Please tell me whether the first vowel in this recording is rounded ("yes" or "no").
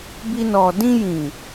no